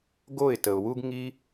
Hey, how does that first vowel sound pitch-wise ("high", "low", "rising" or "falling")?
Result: falling